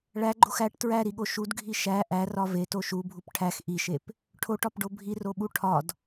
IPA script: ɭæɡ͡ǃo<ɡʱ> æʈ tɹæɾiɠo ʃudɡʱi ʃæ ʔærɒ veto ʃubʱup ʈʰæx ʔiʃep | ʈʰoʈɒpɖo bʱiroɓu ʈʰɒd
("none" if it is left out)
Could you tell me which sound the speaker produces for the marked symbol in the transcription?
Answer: x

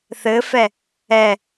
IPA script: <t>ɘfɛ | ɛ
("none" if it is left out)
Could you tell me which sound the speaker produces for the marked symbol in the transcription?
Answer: θ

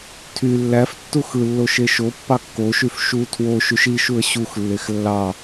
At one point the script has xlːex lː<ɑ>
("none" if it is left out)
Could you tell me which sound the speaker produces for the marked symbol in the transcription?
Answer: ɑ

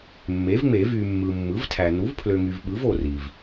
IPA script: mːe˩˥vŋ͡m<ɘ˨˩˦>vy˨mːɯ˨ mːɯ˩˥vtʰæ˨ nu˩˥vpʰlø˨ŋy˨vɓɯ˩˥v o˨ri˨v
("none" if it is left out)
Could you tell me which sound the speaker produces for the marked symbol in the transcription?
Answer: e˨˩˦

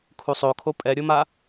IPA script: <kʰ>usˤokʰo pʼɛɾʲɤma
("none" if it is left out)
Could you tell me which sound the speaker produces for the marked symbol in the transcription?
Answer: kʰ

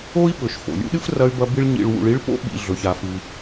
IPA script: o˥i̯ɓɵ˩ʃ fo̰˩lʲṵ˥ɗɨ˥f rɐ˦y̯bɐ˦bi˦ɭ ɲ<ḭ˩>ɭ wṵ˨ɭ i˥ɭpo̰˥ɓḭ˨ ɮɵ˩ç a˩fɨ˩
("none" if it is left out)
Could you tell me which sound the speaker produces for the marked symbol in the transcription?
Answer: ḭ˨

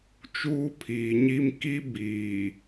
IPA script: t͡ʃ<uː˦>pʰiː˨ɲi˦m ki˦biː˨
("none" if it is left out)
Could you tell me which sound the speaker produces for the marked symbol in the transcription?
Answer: uː˦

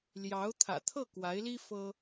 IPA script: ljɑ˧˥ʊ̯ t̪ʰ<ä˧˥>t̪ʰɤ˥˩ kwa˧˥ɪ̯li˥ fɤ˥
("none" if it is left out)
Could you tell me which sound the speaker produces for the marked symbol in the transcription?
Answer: ä̰˨˩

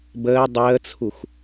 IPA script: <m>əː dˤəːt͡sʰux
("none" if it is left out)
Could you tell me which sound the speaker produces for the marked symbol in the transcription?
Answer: b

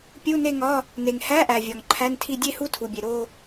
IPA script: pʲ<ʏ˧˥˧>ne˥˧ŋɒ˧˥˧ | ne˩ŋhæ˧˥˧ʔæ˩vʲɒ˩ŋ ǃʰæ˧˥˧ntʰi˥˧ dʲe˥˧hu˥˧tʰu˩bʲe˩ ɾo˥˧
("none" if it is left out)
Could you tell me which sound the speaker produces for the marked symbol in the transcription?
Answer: u˧˥˧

